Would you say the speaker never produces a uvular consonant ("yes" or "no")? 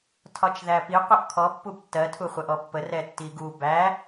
no